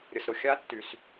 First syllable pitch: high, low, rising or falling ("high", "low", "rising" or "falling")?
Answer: low